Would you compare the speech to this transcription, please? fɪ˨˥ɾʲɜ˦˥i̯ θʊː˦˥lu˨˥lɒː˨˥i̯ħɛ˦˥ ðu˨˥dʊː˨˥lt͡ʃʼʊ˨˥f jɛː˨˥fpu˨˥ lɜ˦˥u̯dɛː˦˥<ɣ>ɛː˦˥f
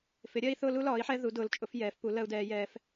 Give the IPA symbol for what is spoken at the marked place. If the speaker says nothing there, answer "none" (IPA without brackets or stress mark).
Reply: j